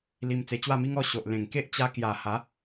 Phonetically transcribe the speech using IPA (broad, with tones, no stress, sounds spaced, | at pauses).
l i˧ m t͡s e˧ t͡ɕ w a˥˧ m i˦ ŋ ɔ˥˧ ɕ o˨ ʔ l ẽ˨˩ ŋ k e˦ ʔ t͡ɕ a˧ k j a˨˩ h a˨˦